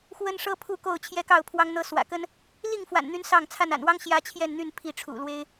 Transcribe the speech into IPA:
x w ə˦ n ʂ ɤ˦ pʰ u˥˨ k o˥˨ ʊ̯ t͡ɕʰ j ɛ˦ k ɑ˥˨ ʊ̯ pʰ w ɑ˦ ŋ n̪ ɤ˦ s w ä̰˨˩ k ə˦ n | l i˥˨ ŋ f w a̰˨˩ n n̪ y˨˦ n s ɑ˥˨ ŋ t͡sʰ a˥˨ n a̰˨˩ n w ɑ˦ ŋ ɕ j ä˦ t͡ɕʰ j ɛ˥˨ n n̪ y˥˨ n pʰ i˥˨ ʈ͡ʂʰ ṵ˨˩ l w e˦ ɪ̯

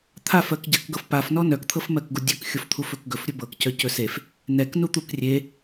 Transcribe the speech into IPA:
t̪ʰ a f ɜ k ɟ a k ɡ ɤ f p a f n ɔ n œ k t̪ʰ ɤ f m ɜ k ɡ u dʲ ɵ k xʲ o f t̪ʰ u f ɵ k ɡ ɵ f ɾʲ ɵ b ɤ k c œ c ɵ s e f | n ɛ k n u t̪ u k rʲ e

